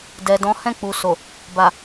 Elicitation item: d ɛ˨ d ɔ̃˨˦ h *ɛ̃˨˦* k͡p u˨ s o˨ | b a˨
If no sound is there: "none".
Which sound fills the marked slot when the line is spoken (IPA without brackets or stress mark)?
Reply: ɛ̃˦˨